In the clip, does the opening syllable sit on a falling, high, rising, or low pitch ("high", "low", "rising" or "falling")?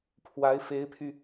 rising